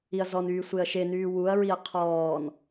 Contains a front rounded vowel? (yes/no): yes